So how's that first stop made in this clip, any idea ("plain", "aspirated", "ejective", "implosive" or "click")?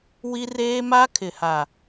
aspirated